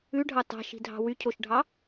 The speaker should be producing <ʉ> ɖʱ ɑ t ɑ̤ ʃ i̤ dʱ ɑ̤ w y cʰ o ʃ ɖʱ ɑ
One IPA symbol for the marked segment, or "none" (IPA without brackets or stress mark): ʉ